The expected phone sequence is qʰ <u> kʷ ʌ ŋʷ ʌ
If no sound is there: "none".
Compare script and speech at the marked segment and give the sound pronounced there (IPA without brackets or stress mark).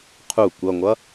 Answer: u